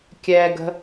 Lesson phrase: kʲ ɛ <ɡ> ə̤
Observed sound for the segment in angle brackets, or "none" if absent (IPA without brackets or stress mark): ɡ